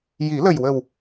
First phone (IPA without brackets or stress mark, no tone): j